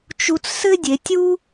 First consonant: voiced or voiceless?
voiceless